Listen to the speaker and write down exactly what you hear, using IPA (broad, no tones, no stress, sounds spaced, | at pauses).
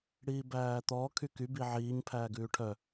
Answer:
ɽ iː b æː t̪ ɔ kʰ y k y b i ʕ iː ɲ pʰ æː ɡ ʉː ʈʰ œ